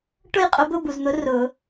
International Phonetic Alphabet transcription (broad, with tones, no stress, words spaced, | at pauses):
ʈʊ˥˨jqʼʊ˧˥bʊ˧˥˧ bu˨zn̪ʊ˧˥ rʊ˨˩˦